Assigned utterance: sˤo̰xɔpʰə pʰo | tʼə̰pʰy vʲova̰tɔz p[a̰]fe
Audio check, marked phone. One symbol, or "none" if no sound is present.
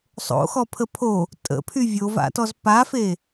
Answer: a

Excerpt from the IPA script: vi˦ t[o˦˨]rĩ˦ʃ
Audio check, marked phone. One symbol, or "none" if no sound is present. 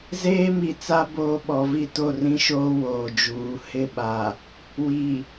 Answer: o˦˨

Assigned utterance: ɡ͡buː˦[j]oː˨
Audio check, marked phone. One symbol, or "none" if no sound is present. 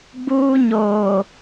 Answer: ɲ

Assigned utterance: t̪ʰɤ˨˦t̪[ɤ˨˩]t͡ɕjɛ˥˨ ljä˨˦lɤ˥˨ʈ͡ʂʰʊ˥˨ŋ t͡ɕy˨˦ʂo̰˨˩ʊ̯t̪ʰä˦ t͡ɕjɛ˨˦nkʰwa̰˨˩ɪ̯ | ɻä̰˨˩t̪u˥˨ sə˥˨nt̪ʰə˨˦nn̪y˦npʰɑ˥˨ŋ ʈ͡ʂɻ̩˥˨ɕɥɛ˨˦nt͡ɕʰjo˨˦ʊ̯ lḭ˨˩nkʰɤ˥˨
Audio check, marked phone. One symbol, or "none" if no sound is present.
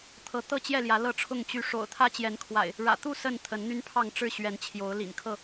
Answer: ɤ˥˨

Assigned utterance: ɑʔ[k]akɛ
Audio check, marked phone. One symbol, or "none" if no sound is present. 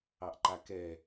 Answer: ǃ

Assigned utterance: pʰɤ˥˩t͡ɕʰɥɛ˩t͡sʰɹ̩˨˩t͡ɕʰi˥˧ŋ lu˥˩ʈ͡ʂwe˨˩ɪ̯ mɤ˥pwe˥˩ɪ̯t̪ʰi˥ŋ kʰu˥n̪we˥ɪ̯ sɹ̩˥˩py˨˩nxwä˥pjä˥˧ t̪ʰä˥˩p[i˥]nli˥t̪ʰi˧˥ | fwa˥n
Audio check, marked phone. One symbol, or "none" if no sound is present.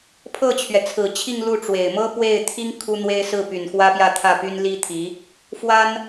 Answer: y˥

